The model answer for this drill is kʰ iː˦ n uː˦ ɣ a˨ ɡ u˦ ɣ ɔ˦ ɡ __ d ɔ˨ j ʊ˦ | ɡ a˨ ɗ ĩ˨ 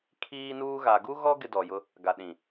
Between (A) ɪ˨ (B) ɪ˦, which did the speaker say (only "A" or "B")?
B